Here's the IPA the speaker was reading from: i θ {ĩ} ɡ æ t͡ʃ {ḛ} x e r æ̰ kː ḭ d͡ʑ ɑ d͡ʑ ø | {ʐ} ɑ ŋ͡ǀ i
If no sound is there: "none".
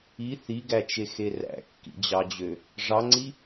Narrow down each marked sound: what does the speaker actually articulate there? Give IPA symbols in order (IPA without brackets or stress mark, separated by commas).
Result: i, e, ʐ